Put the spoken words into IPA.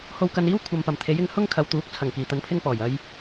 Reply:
h o˧ w k ɐ˧ n iː˥ w kʷʰ ɐ˨ m p ɐ˨˩ m t̪ʰ e˨˥ j ɪ˨˥ ŋ h ʊ˥ ŋ kʰ ɐ˨ w t̪ uː˨˥ k̚ t͡sʰ ɐ˨˩ ŋ k iː˨˩ t̪ ɐ˨˧ n pʰ ɪ˧ ŋ p ɔː˨˩ j ɐ˨ j

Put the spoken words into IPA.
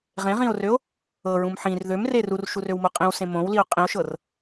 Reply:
ʁ ẽ ʁ ĩ o̯ r ø o̯ | ɤ ɹ ũ m ħ ĩ r ð ø m r e r u r ʃ u r ø w m o qʼ ĩ w s ẽ m õ w l i o̯ qʼ ĩ o̯ ʃ ɤ r

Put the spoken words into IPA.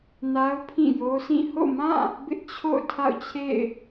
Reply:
n a˦ ʊ̯ pʰ ĩ˦˨ j o˦ s ĩ˦˨ h o̰˦˨ m ã˦˨ | b ɪ˦ ʔ t͡ɕʰ o̰˦˨ ʊ̯ tʰ a̰˦˨ ʊ̯ t͡ɕʰ ḛ˦˨ ɪ̯

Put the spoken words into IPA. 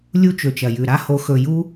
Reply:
lʲ u˧ t͡ʃ ɵ˨ t͡ʃ ɐ˨ j ʉ˨ ɾ a˦ h o˧ x ɵ˧ j u˦

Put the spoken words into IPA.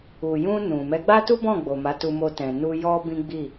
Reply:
u˨ j ũ˧ n ũ˨ m ɛ˨˦ ɡ͡b a˦ t u˦ b ɔ̃˦˨ ɡ͡b o˨ m a˨˦ t u˧ m o˧ t ɛ̃˨ n u˧ j ɔ˦ b ĩ˦ ɡ͡b i˦˨

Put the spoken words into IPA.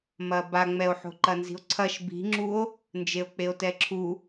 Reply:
m ɐ b a ŋ͡m ɛ o̯ ħ o̤ ǃ ɐ n z i̤ o̯ ǀʰ ɐ ʃ b i̤ ŋ͡ǁ u o̯ | n d͡ʒ e o̯ k͡p e o̯ t ɛ ǁʰ u

